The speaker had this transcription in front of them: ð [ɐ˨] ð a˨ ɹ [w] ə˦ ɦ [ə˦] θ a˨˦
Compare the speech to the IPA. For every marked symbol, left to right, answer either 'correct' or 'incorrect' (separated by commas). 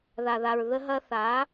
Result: incorrect, incorrect, incorrect